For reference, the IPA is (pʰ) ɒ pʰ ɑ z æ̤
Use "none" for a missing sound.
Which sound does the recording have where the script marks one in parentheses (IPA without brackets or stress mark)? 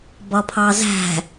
b